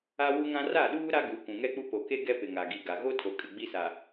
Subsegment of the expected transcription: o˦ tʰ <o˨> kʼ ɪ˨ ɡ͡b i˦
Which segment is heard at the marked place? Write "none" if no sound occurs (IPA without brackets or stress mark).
o˨